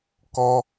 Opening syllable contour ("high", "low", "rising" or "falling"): high